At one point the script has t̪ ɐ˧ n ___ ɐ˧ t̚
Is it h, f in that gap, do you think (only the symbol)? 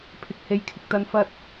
f